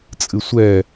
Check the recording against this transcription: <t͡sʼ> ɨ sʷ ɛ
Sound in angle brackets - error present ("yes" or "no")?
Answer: no